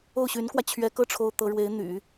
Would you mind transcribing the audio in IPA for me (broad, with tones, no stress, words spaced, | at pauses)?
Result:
o˥˩ʊ̯ɕy˧˥nkwä˧ t͡ɕʰɥɛ˧˥kɤ˥˩ ʈ͡ʂʰo˥ʊ̯t̪ɤ˧˥ ɻwe˧˥ɪ̯n̪y̰˨˩˦